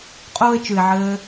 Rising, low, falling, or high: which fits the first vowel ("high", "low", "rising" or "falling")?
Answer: high